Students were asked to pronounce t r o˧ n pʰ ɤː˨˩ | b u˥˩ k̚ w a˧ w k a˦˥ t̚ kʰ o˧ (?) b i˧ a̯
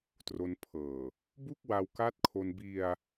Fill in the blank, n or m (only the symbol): n